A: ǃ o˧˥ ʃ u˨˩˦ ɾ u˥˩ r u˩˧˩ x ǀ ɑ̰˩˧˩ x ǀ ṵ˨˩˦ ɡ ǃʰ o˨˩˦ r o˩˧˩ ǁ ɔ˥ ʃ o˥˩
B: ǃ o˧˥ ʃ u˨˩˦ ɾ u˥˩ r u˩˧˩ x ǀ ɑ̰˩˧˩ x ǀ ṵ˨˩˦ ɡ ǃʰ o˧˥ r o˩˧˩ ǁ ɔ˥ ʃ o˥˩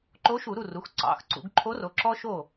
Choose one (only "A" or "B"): B